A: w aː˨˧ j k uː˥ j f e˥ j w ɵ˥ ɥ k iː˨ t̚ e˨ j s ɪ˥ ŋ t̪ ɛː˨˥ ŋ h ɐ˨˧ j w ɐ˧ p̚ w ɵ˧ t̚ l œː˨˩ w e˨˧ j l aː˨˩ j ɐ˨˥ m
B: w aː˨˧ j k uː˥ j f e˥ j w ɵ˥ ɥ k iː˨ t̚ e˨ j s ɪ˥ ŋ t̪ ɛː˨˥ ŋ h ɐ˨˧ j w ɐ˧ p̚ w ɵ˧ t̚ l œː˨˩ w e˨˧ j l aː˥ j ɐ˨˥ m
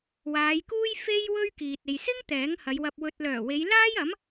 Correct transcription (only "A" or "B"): B